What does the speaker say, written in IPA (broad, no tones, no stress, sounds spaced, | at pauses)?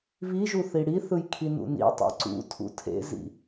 β i ʒ u θ i ɽ i θ ɯ j kʰ i n ṵ n ḭ tˤ ḛ ǀ ṵ tʰ ṵ tʰ ḛ z ḭ